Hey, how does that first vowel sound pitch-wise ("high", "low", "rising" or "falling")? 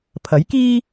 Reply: rising